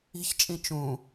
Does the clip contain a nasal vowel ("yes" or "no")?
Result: yes